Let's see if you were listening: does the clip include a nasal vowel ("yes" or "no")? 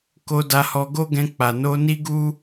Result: yes